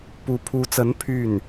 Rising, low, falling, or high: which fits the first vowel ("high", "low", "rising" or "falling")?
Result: rising